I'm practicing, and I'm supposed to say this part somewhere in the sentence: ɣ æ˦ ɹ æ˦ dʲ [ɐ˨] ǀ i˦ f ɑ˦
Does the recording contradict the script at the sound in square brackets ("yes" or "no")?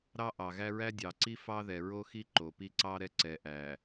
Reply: yes